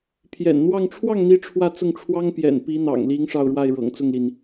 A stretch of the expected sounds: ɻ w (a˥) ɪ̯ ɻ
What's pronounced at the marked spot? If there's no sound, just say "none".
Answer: a˥˩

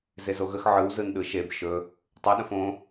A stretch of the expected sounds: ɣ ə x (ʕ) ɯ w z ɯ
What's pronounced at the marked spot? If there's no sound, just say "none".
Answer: ʕ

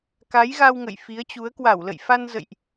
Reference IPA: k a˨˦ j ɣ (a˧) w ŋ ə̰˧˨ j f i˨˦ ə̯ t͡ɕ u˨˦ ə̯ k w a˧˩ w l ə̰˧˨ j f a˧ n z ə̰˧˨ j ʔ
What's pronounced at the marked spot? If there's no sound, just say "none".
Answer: a˧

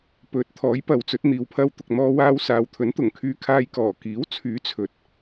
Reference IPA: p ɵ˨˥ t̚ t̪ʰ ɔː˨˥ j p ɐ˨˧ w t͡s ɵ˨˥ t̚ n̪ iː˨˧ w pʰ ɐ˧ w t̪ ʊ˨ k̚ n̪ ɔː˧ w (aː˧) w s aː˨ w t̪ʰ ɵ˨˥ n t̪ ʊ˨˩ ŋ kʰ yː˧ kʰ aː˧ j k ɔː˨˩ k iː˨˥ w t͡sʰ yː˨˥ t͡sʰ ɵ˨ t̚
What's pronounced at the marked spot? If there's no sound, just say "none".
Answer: aː˧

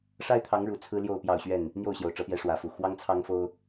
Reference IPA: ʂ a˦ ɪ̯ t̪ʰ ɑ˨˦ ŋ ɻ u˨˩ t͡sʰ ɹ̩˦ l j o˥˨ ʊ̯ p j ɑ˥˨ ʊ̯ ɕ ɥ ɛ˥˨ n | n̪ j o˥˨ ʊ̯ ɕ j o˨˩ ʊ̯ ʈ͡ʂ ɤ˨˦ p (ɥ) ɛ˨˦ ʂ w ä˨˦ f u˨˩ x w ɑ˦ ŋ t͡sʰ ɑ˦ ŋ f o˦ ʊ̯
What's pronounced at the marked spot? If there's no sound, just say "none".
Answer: j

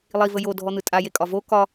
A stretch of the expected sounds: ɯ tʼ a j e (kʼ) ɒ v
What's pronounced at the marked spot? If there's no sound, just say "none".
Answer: kʼ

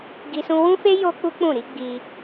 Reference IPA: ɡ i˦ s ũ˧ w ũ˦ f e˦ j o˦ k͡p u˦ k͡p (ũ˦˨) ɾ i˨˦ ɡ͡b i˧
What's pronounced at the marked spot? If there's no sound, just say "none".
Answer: ũ˦˨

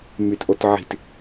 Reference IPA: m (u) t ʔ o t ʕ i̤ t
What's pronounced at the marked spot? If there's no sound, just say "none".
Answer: y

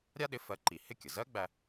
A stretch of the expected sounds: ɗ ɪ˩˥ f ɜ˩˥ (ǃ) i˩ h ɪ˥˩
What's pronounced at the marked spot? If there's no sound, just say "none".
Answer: ǃ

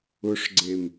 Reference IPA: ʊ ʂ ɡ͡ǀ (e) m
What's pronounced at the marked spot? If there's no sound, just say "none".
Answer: e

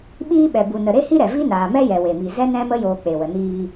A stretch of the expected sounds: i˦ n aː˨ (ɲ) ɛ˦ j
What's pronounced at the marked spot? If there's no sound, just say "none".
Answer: m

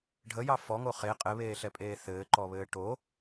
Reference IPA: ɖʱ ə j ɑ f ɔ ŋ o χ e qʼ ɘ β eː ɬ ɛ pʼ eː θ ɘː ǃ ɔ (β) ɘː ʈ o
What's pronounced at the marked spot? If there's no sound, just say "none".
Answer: β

